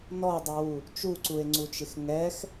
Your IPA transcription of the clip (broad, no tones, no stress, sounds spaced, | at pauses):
n ɔ dˤ u w u | t͡ʃ u ǀ u e̯ ŋ͡ǀ u t͡ʃ ɪ x ŋ ɛ x